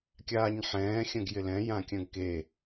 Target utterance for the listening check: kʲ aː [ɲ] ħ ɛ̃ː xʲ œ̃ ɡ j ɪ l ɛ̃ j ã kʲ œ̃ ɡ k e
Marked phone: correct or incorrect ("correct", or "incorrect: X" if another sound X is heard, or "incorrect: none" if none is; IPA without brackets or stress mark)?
correct